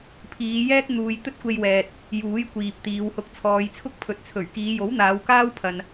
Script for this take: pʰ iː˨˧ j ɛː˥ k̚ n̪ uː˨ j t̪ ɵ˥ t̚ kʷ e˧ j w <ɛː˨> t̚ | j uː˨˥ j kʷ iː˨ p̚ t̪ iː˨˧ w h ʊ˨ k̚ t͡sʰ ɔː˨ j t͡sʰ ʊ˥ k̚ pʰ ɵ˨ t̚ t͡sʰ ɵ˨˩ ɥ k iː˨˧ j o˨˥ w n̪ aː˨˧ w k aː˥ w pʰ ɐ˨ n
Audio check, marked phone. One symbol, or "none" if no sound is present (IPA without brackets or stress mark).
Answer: ɛː˨